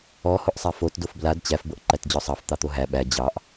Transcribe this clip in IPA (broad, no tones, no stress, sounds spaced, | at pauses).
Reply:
ɔ h o ʔ sˤ a f o t d o f b l a d t͡ɕ æ f b ɤ ʔ ǃ æ t d͡ʑ ɔ sˤ ɑ f t̪ ɑ t̪ o ɦ æ ɓ æ d͡ʑ ɑ ʔ